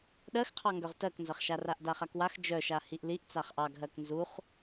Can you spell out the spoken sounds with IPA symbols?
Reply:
ɗ ɜ x qʰ ɑ ŋ ɡ œ ʁ t ɜ k n z ɐ χ ʃ a r a ʔ d a χ a k w a x d͡ʒ œ ʃ a h i ʔ l i ʔ t͡s a χ ʔ ɑ ɡ ɦ ɜ k n z u χ

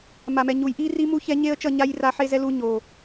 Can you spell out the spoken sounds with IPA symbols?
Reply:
m a˨ m ɛ˨ ɲ u˨ j ʔ i˦ r i˦ m u˦ ç ɛ˦ ɲ e˦ ə̯ t͡ʃ ʌ˦˨ ɲ a˦ j r a˦ ħ e˦ z ɛ˦ l u˦ ɲ o˨

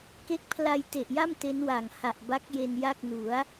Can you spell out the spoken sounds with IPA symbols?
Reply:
k e˦˥ k̚ pʰ l a˧ j t e˨˩ ʔ j a˥˩ m t e˦˥ n w a˨˩ ŋ h a˨˩ ʔ b a˦˥ k̚ j e˧ n j a˥˩ k̚ n u˩˦ a̯

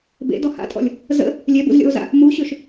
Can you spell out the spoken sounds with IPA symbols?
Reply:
b ḛ d ɔ h a̰ tʼ ɔ̰ lʲ | z ə̰ | lʲ ɛ b ṵ z lʲ ɔ̰ o̯ z a̰ | m u ɕ ø ʃ

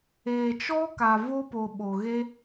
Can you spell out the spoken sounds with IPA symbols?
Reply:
eː˨ t͡ʃ ɔ˦ k a˨ v o˦ p o˨ ɓ o˨ ɣ e˦

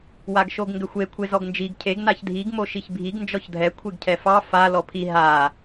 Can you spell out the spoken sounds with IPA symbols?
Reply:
w a ɡ ʃ o ɡ ŋ ɡ ʏ xʷ e kʷʰ e z ɔ ɡ n d͡ʒ i ɡ cʰ e ɡ n a ç dʱ i ɡ m o ʃ i ç bʱ i ɡ n d͡ʒ ɔ ç dʱ ɛ kʷʰ e ɡ cʰ ɛ f ɑ f a l ɔ pʰ i ɦ a

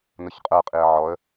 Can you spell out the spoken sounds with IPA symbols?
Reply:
n ʊ ç qʼ ə˞ qʼ i ə̯ ʕ ɔ ə̯

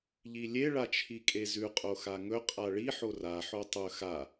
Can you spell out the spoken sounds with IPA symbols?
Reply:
ʎ i lʲ e ɭ a t͡ʃʰ i kʼ e z ʉ qʼ o x a ŋ ɵ qʼ a ɭ i ħ o r a ħ o tˤ ɵ x a

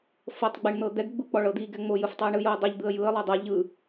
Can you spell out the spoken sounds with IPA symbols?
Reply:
f ɤ tˤ ɡ͡b ɛ ɳ n̪ ɤ d̪ ɛ ɡ ɡ͡b u k͡p ɔ ɭ ɤ d̪ i ɡ ɛ ŋ͡m o j ɯ f tˤ u ɪ̯ ɳ ɯ j o ə̯ dˤ ɛ ʎ d̪ ɯ ə̯ j ɯ ə̯ lˠ o dˤ a ʎ ɯ

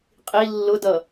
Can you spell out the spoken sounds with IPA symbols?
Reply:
qʼ i lː ʊ d ʌ

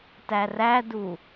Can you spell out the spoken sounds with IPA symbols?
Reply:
t æ r æ d u

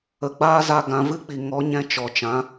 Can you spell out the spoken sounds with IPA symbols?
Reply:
ə˨ ɡ͡b aː˦ z a˧ ɡ ã˧ v ɨ˦ k͡p i˨ ŋ ɔ˨˦ ɲ ɛ̃˧ t͡ʃ ɔ˨ t͡ʃ ã˨˦

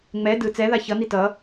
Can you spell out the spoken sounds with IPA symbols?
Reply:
ŋ͡m ɛ d ɯ t͡s ɛ ð a ç ʌ n i t ʌ

